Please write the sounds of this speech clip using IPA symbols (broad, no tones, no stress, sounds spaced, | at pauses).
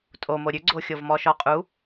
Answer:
tʼ o m o ɾʲ ʉ ɡ͡ǀ o xʲ o v m ɔ ʃ ɔ qʼ u